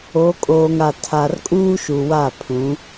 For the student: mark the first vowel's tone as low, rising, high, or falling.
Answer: rising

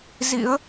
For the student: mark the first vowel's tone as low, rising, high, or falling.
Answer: rising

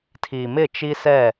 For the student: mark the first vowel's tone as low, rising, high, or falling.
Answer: low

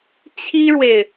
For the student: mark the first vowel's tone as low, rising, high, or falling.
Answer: high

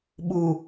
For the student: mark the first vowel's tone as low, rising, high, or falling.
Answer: low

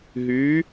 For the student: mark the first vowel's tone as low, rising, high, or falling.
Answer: rising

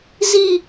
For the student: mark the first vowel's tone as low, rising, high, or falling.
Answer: high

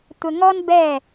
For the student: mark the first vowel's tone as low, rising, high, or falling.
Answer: low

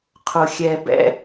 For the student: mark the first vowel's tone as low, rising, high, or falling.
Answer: low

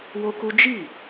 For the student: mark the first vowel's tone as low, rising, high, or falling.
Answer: high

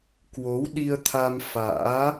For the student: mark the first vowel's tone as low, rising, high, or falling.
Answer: rising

